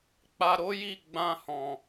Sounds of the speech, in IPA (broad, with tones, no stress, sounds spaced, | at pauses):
k͡p a˧ ɾ o˦ j i˦˨ ɡ͡b ã˧ h ɔ̃˨